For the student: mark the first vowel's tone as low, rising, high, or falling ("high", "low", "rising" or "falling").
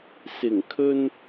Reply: low